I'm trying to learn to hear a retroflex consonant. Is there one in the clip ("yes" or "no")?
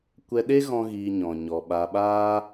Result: no